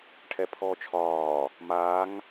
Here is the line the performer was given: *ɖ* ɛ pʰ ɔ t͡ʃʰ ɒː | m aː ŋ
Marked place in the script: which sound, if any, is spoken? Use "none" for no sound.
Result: ʈʰ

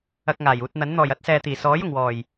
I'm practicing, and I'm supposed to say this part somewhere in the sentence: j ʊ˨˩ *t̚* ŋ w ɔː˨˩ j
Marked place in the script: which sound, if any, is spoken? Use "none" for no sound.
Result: none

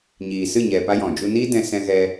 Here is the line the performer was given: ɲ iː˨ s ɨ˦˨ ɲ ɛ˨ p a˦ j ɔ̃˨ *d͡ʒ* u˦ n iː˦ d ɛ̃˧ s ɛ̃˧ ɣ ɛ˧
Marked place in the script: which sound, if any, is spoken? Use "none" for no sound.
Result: d͡ʒ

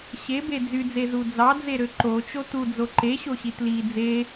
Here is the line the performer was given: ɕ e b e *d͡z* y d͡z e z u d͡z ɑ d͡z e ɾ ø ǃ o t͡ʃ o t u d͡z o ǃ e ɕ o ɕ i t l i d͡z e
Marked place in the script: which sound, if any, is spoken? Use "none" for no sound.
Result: d͡z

